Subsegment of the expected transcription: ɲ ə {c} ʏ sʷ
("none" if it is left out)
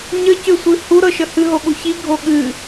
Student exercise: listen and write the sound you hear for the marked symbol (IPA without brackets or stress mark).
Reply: c